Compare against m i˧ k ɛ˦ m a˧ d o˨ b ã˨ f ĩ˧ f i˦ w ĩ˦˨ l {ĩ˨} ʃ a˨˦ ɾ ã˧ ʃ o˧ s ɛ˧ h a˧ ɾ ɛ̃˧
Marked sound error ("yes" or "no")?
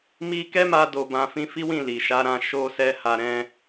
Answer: yes